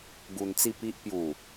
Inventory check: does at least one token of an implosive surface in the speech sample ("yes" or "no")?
no